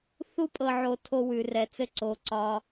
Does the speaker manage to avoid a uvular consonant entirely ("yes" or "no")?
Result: yes